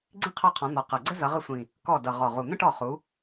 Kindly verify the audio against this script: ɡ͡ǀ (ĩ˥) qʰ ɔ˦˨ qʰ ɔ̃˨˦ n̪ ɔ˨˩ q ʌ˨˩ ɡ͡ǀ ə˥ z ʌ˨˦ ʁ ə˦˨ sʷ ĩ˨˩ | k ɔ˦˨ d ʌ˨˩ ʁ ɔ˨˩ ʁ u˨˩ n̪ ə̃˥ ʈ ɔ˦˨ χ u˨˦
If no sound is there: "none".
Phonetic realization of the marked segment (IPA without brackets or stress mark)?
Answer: ĩ˥